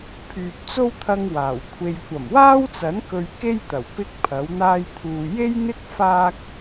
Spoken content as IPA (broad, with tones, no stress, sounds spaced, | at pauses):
pʰ yː˨ p̚ t͡s o˥ w t̪ʰ ɐ˥ ŋ w aː˨˩ w kʷʰ e˧ j kʷ ɐ˨˩ m w aː˥ w t͡s ɐ˨˥ n k ɵ˧ ɥ k e˥ j t̪ ɐ˨˩ w p ɪ˥ k̚ pʰ ɐ˨˥ w n̪ aː˥ j t̪ʰ uː˧ j e˥ j n̪ ɪ˥ k̚ f aː˥ k̚